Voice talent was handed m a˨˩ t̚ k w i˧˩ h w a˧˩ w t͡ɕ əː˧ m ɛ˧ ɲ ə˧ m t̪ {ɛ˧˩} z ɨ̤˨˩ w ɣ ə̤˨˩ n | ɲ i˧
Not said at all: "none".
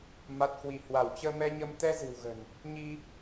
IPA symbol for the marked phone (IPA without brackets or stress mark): ɛ˧